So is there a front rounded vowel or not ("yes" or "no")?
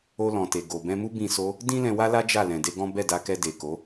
no